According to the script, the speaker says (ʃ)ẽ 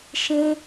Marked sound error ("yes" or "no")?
no